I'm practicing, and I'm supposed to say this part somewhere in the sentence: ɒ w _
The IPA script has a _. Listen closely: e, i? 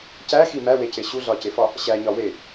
e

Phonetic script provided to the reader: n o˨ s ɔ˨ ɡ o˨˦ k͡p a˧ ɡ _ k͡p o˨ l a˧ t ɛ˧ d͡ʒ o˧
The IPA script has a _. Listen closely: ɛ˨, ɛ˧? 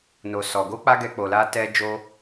ɛ˨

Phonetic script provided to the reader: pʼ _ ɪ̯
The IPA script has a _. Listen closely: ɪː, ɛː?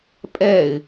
ɛː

